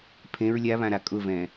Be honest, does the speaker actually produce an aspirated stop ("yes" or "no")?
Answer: yes